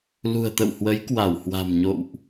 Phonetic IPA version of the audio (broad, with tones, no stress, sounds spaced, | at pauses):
l ṳ˨˩ ə̯ t̪ ə̰˧˨ w h w ə˨˦ j k w a˧˩ w h w a̤˨˩ m ɲ o̰˧˨ w ʔ